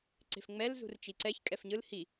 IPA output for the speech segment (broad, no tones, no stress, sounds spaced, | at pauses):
ǀ e̤ f ŋ͡m ɛ l z ṳ r t͡ʃ i ǀ ɛ ç kʼ ɛ f ɲ ɯ l h i